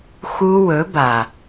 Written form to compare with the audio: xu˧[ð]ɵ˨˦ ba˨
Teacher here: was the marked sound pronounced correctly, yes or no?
no